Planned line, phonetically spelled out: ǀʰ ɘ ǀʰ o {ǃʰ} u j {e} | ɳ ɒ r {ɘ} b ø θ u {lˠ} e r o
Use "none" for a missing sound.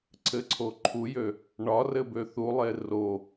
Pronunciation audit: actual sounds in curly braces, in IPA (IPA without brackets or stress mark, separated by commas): ǃʰ, ø, ɘ, lˠ